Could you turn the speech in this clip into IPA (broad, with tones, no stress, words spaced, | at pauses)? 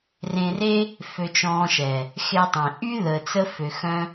rẽ˧re˦ | fø˧t͡ʃɔ̃ː˧ʃɛ˨ | xe˦tˤẽ˨ ʔy˦ðəː˨t͡sə˧ fø˨xœ̃˦